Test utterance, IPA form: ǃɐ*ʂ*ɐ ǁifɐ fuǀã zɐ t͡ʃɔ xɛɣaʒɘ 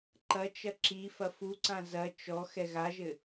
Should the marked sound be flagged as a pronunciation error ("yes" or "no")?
yes